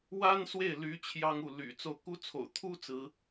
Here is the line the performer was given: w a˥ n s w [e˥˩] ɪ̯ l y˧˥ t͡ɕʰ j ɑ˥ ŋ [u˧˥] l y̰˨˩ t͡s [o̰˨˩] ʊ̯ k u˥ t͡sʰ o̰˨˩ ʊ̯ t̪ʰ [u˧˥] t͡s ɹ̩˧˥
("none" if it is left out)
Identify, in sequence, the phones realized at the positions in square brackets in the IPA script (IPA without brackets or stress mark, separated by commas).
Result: e˥˩, u˥˩, o˥˩, u˥